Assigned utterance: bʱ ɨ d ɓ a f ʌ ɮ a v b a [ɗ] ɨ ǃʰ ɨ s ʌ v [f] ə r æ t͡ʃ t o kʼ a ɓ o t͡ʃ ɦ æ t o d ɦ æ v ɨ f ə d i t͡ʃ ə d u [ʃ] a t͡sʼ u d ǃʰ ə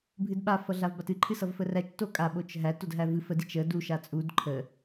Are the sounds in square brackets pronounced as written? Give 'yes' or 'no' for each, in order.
no, yes, yes

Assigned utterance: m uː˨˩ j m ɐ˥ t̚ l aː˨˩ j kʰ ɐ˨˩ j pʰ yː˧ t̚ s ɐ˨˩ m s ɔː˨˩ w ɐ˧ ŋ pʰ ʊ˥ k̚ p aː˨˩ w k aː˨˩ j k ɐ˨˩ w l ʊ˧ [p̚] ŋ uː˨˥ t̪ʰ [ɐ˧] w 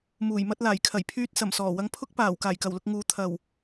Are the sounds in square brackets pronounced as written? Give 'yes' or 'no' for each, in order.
no, no

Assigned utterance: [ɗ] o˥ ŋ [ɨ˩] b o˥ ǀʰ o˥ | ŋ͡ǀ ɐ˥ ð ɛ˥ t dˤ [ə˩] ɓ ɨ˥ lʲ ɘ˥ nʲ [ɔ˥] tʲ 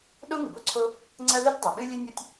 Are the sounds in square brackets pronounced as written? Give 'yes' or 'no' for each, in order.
yes, yes, no, yes

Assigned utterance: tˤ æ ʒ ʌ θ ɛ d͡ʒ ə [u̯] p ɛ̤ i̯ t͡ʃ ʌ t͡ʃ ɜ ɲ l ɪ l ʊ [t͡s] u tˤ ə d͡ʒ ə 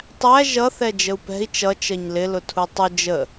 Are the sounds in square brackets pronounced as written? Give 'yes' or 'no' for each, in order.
yes, no

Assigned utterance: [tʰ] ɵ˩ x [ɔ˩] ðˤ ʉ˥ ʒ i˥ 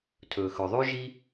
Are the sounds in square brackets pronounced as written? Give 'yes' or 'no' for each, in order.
yes, no

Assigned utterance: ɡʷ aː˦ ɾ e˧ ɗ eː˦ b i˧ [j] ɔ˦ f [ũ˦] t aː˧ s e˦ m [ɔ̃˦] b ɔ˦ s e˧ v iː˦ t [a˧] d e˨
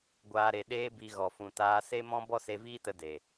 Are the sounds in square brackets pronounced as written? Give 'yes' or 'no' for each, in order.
no, yes, yes, no

